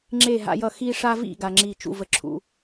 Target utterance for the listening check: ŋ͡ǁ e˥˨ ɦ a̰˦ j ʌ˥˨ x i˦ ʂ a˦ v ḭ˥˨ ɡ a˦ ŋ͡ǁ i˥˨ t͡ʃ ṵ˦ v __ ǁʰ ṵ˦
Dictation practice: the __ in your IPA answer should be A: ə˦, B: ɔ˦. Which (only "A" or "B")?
A